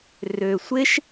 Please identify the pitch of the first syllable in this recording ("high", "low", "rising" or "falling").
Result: low